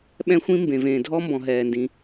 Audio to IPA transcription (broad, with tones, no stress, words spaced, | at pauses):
ɓɛ̃˥xʷĩ˥ mbẽ˩vẽː˩ dʱɔ˥mbɔ̃˩ ɦɛː˩ndĩ˩